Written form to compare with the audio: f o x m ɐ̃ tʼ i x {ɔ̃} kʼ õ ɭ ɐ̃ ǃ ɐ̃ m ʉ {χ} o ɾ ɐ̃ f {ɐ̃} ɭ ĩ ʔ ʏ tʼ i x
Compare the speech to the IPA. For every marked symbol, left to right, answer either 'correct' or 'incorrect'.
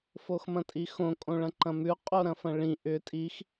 incorrect, incorrect, correct

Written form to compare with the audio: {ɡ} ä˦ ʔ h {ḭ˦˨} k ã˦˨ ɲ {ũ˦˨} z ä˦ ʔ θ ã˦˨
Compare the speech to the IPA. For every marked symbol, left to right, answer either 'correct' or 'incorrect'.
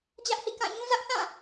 incorrect, correct, incorrect

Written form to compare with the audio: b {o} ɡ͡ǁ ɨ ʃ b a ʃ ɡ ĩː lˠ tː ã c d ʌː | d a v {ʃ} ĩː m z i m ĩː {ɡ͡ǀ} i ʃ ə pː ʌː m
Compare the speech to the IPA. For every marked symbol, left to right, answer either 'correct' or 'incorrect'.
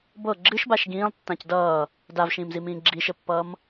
incorrect, correct, incorrect

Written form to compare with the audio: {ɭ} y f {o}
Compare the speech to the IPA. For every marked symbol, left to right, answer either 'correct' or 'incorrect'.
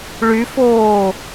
correct, incorrect

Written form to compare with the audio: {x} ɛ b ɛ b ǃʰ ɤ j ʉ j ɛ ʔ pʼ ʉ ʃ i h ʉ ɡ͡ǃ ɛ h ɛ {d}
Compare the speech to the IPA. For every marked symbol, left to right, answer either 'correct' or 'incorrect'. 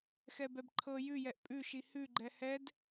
correct, correct

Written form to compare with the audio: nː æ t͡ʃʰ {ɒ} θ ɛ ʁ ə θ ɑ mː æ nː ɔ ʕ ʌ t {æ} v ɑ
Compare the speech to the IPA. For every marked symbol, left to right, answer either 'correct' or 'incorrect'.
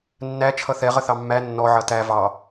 incorrect, correct

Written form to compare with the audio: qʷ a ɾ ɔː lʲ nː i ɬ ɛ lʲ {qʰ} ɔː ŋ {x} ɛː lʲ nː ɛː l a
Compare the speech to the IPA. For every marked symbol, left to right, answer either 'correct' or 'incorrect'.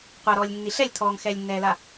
incorrect, correct

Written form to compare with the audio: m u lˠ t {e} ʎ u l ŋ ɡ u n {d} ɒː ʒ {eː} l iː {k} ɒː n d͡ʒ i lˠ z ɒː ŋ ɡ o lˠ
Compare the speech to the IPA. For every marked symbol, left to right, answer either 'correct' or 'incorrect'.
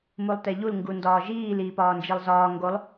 correct, correct, incorrect, incorrect

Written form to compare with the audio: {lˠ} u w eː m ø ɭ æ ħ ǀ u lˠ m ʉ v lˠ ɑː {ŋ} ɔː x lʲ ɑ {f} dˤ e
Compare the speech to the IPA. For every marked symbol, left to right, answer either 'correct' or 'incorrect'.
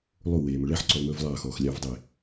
correct, incorrect, incorrect

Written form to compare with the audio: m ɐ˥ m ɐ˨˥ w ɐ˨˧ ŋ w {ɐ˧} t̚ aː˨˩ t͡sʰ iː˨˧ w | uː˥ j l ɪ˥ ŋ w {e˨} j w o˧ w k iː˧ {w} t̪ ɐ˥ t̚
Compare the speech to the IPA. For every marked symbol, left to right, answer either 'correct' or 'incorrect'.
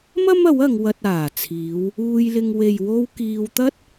correct, correct, correct

